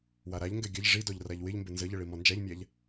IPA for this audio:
w a ɾ a ʎ ŋ ɡ ɛ ɡʲ ə ʎ ʐ i d ɔ ʎ r a ʎ w ɪ ʎ m b ɪ n z ə ʎ ə ɭ i m ɔ n d͡ʒ a ʎ mʲ a ʎ

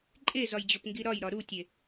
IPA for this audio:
ǃʼ e z ɒ j d͡ʑ o p ŋ ɡ i ɾ ɒ j ɾ ɒ ɾ u tʲ e

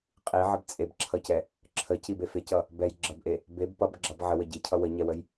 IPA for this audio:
qʼ i ʕ ə b t͡sʼ e b ǁʰ ʌ c ɛ | ǁʰ ə c i b e f e c ʌ | b ɛ j ɡ͡ǁ ʌ b ʔ e | b e b p ʌ b ɡ͡ǁ ʌ b ʕ ə w ə ɟ i cʰ ʌ w ə ɲ ɛ w ə j

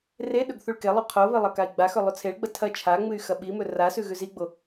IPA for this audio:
r e ɗ ɵ ɡ θ u ɭ k e lˠ ʉ qʰ o β ɨ lˠ ɐ k a i̯ ɡ͡b a x ɵ lˠ ʉ t͡sʰ e ɭ ɡ͡b ɐ tʰ ɐ t͡ʃʰ a ŋ͡m ɨ y̯ x ɐ ɓ i m ɵ r a s ʉ ɣ ʉ z i ɡ͡b o

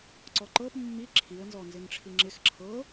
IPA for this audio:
ǀ ɔ ǃ ɤ p mː i ǁʰ i ə̯ n z ɔ n z ɪ n ʈ͡ʂʰ i ŋ͡ǁ ɪ x ǁʰ ɤ

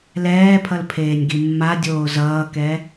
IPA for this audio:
l ɛː pʰ ʌ l pʰ eː nʲ ɡ i mː a dʲ oː z ʌː k ɛ

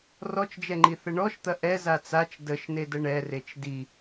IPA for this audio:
r ɔ t͡ʃ d͡ʒ ɛ ŋ͡ǃ i θ ə ɳ ɔ ʃ t̪ ɐ ʔ ɛ z a t͡s a t͡ʃ d ə ʃ n e d ə ɳ ɛ r e t͡ʃ d i

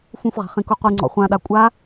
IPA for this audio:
f ũ f ʁ a̤ χ ĩ k u qʷ i ŋ͡ǀ ɔ̰ χʷ ã ɗ a kʷʼ a

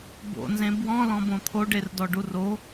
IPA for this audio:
b o̰ n z ẽ b w ɔ̃ l ɔ̃ b õ t̪ʰ o ɖ e r d ɔ ɖ u r o

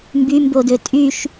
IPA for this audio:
m b y m b o d ø tʼ y ʃ

